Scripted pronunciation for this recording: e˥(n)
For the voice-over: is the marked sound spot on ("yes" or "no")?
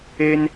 yes